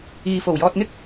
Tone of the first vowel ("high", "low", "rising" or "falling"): low